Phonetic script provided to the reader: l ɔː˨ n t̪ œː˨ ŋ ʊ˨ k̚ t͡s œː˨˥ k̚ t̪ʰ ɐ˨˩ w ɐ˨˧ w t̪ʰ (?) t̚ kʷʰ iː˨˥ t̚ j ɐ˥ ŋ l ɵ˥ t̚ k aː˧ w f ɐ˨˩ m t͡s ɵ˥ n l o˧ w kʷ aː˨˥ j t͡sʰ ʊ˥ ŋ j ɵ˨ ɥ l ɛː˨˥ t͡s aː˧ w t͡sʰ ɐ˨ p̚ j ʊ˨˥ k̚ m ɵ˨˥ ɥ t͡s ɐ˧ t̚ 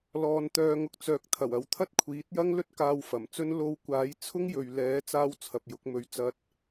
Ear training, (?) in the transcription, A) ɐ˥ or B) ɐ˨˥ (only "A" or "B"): A